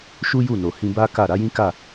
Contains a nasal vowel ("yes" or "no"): yes